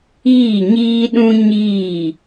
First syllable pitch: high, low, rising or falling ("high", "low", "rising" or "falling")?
falling